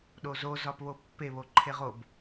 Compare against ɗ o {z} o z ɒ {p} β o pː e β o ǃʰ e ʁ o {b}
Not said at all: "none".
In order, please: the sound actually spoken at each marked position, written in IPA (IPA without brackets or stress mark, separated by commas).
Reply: z, p, b